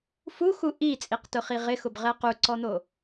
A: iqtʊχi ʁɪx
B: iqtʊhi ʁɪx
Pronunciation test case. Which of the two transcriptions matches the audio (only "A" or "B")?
A